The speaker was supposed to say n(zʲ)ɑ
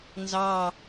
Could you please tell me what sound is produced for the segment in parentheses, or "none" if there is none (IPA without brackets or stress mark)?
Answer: z